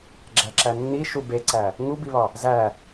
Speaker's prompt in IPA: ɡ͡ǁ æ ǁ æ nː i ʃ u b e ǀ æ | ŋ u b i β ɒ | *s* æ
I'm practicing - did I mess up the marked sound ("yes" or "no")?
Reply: yes